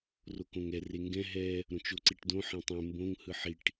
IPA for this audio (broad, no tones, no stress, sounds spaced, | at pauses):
r o k õ ŋ ɛ r e ŋ ɡ ɛ̃ ɦ ɛ | ɾ õ t͡ʃ o ǀ i ʈ d õ ħ ẽ tˤ ẽ m b õ ŋ h ɯ ħ i ʈ